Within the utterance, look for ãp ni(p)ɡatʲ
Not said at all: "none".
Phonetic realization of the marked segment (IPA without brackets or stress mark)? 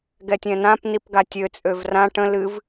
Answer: p